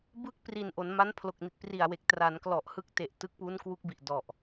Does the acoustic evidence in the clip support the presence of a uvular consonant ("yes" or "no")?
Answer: no